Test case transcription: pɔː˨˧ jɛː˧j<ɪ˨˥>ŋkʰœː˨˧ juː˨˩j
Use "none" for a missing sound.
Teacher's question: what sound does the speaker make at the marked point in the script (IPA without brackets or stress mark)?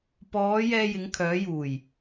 ɪ˨˧